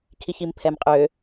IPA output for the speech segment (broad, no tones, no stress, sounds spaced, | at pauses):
kʰ i ç i m pʰ ɛ m qʼ ø